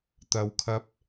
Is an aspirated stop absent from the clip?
no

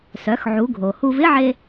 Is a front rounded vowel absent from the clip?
no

